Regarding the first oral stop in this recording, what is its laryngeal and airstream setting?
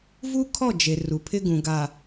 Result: aspirated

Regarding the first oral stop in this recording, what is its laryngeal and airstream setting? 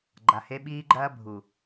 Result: click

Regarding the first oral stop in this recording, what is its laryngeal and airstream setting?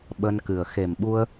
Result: implosive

